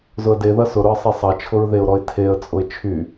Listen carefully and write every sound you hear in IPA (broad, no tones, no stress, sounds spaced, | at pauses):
z ʊ ə̯ d e ð ɐ s ʊ ɾ ʊ ə̯ sˤ e sˤ ɐ t͡ʃʰ ʊ ɹ ð e ʊ̯ ɾ ɔ ɪ̯ tʰ e ə̯ t͡sʼ ʊ ɪ̯ t͡ʃʰ y